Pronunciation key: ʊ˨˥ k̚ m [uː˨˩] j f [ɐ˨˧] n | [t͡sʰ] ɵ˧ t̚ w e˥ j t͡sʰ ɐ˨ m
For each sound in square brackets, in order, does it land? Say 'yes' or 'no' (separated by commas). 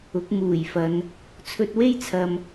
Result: yes, yes, yes